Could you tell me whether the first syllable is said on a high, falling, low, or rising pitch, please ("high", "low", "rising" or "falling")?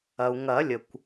low